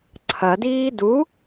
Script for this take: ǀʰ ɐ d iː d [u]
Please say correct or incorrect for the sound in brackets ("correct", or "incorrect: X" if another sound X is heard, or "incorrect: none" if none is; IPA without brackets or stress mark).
correct